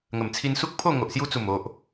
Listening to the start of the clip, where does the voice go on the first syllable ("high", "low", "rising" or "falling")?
low